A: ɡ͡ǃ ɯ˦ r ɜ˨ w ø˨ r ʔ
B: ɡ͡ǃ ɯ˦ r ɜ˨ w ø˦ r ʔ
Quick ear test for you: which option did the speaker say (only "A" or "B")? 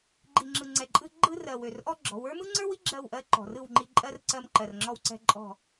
A